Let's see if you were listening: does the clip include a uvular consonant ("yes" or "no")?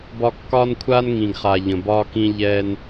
yes